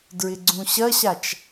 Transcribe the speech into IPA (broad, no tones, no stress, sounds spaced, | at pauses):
d ɹ ɪ ɡ͡ǀ ũ ɕ ɐ ɕ a t͡ʃ